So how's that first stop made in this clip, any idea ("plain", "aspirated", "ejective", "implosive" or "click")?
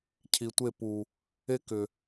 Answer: aspirated